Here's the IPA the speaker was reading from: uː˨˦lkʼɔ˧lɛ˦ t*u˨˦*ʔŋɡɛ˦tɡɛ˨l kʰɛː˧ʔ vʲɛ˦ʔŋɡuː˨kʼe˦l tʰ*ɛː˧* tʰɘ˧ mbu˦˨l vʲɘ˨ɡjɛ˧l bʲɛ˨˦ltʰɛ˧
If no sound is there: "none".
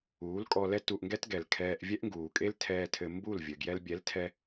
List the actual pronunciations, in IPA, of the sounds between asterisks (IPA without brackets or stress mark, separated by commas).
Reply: u˧, ɛː˧